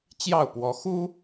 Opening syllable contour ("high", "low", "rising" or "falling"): falling